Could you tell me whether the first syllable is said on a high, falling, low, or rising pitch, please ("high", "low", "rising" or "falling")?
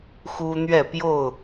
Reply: high